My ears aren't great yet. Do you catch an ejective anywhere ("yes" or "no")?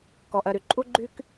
yes